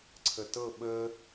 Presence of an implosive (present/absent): present